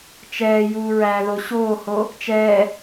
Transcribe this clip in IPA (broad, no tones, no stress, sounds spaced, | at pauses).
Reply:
t͡ʃ ɛː j uː ɹ æː ð o ɕ oː h o | t͡ʃ ɛː